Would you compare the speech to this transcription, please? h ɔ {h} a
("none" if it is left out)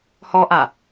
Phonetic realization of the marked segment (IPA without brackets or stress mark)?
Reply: ʔ